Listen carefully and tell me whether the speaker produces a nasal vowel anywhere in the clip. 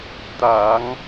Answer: no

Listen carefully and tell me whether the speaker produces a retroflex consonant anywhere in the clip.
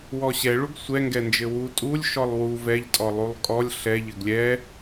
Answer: yes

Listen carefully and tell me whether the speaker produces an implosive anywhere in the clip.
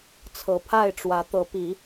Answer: no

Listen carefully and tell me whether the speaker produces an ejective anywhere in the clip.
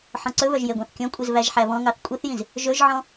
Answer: yes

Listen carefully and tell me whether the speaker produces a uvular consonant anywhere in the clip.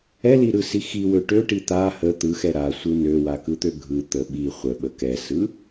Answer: yes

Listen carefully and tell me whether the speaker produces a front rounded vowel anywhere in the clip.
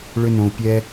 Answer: yes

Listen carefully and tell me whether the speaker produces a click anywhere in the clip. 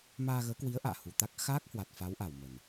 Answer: no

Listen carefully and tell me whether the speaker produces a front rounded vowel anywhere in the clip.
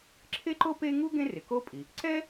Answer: no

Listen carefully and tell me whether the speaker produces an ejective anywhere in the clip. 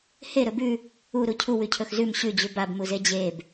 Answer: no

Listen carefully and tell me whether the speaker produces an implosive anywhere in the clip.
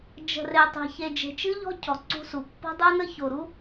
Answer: no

